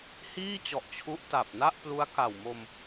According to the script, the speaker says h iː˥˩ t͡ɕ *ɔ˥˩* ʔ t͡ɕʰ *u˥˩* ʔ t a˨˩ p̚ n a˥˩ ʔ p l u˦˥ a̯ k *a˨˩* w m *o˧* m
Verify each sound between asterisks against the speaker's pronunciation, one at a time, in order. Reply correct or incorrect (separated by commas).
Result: incorrect, incorrect, correct, correct